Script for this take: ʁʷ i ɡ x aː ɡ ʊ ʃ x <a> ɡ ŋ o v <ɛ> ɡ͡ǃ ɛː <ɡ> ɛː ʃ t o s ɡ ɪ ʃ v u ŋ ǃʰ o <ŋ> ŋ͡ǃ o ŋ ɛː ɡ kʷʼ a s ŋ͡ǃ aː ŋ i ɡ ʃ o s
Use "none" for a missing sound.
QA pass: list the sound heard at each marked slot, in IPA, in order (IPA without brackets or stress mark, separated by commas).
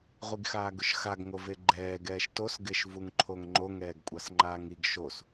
a, e, ɡ, ŋ